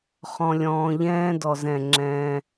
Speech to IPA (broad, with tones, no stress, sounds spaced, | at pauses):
χ ɔ̃˨ lʲ ɔ̃ː˨ ʎ ɛ̃ː˦ d ɔ˨ z ɛ̃˦˨ ŋ͡ǁ ɛ̃ː˦